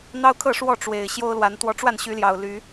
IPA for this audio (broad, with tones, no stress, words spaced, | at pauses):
n̪ɑ˦ʊ̯kʰɤ˥˨ʂwɔ˥˨ ʈ͡ʂwe˨˩ɪ̯ ɕjo˦ʊ̯lwa˨˦n t̪wɔ˨˦ʈ͡ʂwa˥˨nɕy˨˦ljɑ˨˩ʊ̯ ly˨˦